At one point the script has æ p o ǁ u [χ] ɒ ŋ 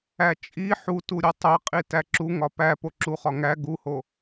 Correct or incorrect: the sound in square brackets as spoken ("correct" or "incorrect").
correct